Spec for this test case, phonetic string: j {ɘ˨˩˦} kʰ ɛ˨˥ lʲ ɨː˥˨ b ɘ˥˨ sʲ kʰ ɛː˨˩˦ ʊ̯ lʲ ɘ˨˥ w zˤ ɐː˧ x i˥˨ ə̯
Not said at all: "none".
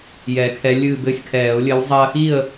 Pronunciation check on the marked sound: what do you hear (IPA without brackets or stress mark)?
ɛ˨˩˦